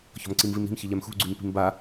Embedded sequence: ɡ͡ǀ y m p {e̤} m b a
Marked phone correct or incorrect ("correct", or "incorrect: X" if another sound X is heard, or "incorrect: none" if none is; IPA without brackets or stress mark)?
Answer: incorrect: i̤